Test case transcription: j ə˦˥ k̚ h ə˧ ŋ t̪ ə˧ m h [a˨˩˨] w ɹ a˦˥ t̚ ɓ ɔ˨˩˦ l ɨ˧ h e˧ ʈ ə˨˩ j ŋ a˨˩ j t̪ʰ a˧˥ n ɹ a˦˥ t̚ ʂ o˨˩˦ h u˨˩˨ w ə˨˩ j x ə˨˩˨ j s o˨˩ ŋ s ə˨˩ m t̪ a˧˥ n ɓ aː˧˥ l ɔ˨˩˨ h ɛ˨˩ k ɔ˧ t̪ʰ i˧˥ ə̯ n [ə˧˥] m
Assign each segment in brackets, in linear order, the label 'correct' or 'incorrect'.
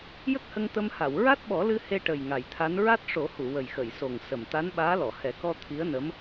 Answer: correct, correct

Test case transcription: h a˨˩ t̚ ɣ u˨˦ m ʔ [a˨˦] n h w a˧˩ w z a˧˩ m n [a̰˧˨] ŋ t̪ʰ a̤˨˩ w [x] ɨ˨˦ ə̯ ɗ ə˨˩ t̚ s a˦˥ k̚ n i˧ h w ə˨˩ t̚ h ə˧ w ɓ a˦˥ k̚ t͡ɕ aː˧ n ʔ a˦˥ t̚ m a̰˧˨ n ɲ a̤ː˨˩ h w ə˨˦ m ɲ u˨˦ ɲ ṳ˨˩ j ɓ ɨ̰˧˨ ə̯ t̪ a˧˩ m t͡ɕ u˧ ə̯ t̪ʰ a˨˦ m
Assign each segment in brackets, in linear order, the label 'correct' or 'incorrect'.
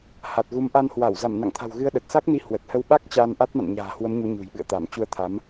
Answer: incorrect: a˧, correct, incorrect: ɣ

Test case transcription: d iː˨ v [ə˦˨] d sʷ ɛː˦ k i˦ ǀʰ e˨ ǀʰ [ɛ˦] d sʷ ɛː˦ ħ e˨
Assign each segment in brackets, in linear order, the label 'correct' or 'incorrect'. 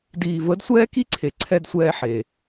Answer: incorrect: ə˨˦, correct

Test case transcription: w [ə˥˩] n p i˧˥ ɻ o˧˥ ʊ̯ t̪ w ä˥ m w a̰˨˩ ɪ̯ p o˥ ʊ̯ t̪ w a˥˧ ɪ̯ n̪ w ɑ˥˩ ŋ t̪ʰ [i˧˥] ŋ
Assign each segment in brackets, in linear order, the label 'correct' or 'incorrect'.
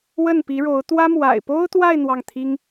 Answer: correct, incorrect: i˥

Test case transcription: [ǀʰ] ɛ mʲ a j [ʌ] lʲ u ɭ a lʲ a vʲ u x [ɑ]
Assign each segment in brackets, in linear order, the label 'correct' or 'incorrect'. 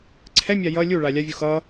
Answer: correct, correct, incorrect: ʌ

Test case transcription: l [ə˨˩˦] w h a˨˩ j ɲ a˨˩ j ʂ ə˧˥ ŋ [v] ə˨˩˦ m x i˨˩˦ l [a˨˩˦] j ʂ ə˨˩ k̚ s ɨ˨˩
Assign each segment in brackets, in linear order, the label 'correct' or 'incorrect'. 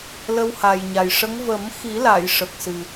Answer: incorrect: ə˧, correct, incorrect: a˨˩˨

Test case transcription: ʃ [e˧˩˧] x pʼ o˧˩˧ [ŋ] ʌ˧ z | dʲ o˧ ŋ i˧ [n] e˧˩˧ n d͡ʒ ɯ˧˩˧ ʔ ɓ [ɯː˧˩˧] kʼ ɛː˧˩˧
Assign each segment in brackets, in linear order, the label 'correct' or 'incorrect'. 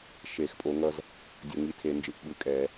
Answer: correct, correct, incorrect: tʰ, incorrect: ɯ˧˩˧

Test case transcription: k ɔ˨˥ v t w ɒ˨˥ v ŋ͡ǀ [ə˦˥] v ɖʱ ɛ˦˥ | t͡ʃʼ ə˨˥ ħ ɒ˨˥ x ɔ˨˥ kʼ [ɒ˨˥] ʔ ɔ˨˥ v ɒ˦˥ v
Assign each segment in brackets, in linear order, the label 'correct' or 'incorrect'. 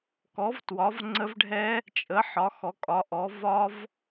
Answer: correct, correct

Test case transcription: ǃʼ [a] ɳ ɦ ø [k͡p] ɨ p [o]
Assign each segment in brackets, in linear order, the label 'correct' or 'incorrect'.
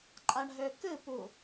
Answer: correct, incorrect: k, incorrect: u

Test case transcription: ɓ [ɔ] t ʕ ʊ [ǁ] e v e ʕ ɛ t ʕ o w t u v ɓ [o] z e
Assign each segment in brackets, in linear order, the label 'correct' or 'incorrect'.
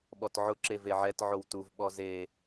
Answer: correct, correct, incorrect: ɔ

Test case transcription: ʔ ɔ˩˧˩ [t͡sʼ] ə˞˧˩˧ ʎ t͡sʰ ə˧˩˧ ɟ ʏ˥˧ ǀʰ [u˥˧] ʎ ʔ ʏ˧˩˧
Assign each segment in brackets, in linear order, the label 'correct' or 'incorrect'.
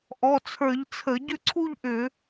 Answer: incorrect: t͡sʰ, correct

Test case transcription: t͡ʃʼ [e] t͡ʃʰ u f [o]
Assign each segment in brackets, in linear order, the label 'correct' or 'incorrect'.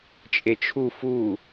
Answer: correct, incorrect: u

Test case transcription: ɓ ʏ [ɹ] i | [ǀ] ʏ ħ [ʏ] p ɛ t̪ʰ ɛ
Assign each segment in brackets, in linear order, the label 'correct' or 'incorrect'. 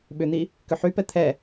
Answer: incorrect: n̪, incorrect: k, incorrect: y

